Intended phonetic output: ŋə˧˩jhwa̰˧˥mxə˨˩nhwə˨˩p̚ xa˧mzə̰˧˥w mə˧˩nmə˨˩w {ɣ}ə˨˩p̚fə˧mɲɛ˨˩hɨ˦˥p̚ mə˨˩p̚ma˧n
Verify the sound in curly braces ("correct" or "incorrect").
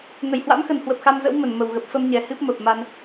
correct